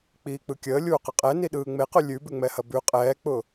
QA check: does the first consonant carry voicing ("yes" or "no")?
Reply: no